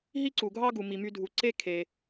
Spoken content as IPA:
ɦ i˥ ǀ u˩ ɡʱ ɑ˥ ɡ u˩ m i˩ m y˧ dʱ u˩ ǀ e˥ kʰ e˩

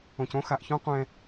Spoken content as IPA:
õ˨ c õ˦ x a˨ ʔ ç õ˥ qʷ ɛ̃˦

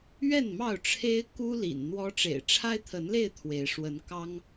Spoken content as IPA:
ɥ ɛ˥˨ n m ɑ˥˨ ʊ̯ ʈ͡ʂʰ e˦ ɪ̯ k u˦ l ḭ˨˩ n n̪ w ɔ˦ ʈ͡ʂ ḛ˨˩ ɪ̯ ʈ͡ʂʰ a˦ ɪ̯ t̪ʰ ə˨˦ n l e˥˨ ɪ̯ t̪ʰ w e˨˦ ɪ̯ ʂ w ə˨˦ n k ɑ˦ ŋ

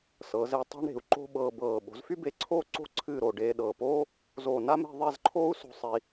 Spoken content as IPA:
s ɤ˩˧ z e˧ tˤ e̤˥ ɳ ɾ e̤˩˧ u̯ ǃ o̤˥ ɓ ɤː˧ b ɤː˧˩ ɓ o̤˩˧ z f y˥ b e˧ ǀʰ oː˥ ǀ o̤˥˧ ǀʰ ɨː˥˧ ɾ oː˧ ɖ eː˧ ɗ ɤː˧˩ p oː˥ | z oː˧˩ n a˥ m e̤˥˧ ðˤ e˥˧ z ǃʰ oː˥ u̯ s o̤˧ sˤ i˧

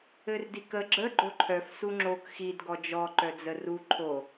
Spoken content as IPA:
ɘ r d i k ə ɡ͡ǁ ə ɡ͡ǃ o ǃʰ œ f s u ŋ͡ǁ o k x i d ɡ ɔ d͡ʒ ɔ ǃ œ d͡z ə r u ǃʰ o

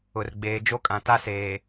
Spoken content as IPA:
ʊ˨ r ɡ͡b eː˨ d͡ʒ o˦ kʼ ã˨ t a˦ s eː˨

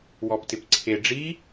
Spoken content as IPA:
w ɔ p t ɪ p ǀʰ e ɖ͡ʐ i

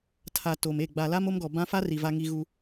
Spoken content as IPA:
tʰ a˨ t o˨ m e˦˨ ɡ͡b a˨ l a˦ m o˦ m ɡ ɔ˨ b ã˦ f a˦ r i˨ v a˦ ŋ i˦ ɣ u˦

